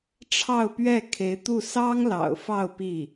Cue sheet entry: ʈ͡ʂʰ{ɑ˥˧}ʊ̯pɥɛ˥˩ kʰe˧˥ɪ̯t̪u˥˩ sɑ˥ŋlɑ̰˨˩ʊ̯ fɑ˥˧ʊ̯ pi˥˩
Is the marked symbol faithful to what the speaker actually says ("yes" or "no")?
yes